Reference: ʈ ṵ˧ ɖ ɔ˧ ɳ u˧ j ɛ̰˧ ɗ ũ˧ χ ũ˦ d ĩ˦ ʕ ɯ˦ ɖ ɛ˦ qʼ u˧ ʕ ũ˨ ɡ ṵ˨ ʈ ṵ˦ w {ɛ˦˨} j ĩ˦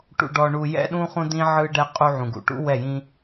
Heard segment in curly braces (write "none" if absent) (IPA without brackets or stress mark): ɛ˦˨